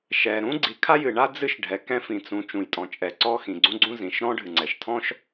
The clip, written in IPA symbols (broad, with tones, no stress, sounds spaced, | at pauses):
ʃ ɛ˩ ɾ ũ˥ ɡ͡ǀ i˩ kʰ a˥ j ɨ˩ ɳ a˥ d͡z ɨ˥ ʃ ɖʱ ɛ˩ k ɛ̃˥ f ĩ˩ t͡s ũ˩ t͡ʃ ũ˩ j tʼ ɔ̃˩ t͡ʃʼ ɛ˩ ǀ ɔ˥ x ĩ˩ ɡ͡ǀ ũ˥ ɡ͡ǀ ũ˥ z ĩ˩ ʃ ɾ ɔ̃˥ ɖʱ ɨ˩ ŋ͡ǀ ɛ˩ ʃ tʰ ɔ̃˥ ʃ